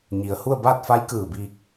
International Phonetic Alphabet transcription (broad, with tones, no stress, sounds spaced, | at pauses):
ɲ i˩ ə̯ h u˥˨ ə̯ b aː˥˨ t̚ f a˧˥ j k ɯː˧˩ b iː˧ k̚